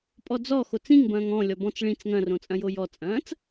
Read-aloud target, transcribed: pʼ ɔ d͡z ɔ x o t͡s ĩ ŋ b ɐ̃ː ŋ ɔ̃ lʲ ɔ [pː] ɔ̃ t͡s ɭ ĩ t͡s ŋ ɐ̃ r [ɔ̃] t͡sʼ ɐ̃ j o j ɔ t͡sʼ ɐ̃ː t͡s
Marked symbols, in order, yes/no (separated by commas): no, no